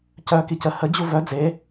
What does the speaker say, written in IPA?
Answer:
cœ kicə hə d͡ʑuvœ d͡ze

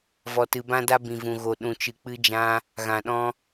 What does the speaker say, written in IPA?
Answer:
vɔ˧tɨ˧bã˦da˦ bĩ˨vũ˨ɣo˨ ɗũ˨t͡ʃɨ˨ k͡pɨ˧d͡ʒã˧ | ɣã˨ɗɔ̃˧

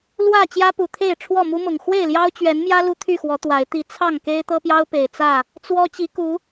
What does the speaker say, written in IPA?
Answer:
lwä˥˨ t͡ɕjä˦pu˨˩t̪ʰe˥˨ɪ̯ ʈ͡ʂʰwɔ˥˨mu˦mʊ˨˩ŋ xwe˥˨ɪ̯ljɑ˦ʊ̯t͡ɕɥɛ˨˦nmjä˦ lu˦t̪ʰy˥˨xwɔ˨˦ t̪wa˨˦ɪ̯ t̪i˨˦ t͡sʰɑ˥˨ŋke˦ɪ̯ t̪ɤ˦pjɑ˦ʊ̯ pe˨˩ɪ̯t͡sä˥˨ | t͡swɔ˦ t͡ɕi˨˦ku˨˦

